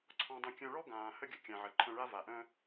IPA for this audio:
ǀʰ ɔ̃˧ dˤ ə̃˧ kʲ œ̃˧ ɭ ɔ˥ ɡ ãː˩ h ə˥ ɡʲ ə˩ kʲ ã˩ ʕ ə˩ ǃʰ œ̃˧ ɭ a˥ v a˩ ʔ œ̃˥

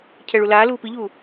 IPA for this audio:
cʰ ɛ ɭ u l aː l uː p i ʎ uː

